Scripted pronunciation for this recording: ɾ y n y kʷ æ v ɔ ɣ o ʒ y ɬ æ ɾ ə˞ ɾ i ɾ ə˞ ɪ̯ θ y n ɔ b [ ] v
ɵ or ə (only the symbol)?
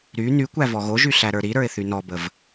ə